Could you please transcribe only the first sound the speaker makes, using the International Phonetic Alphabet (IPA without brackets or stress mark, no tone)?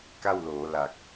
k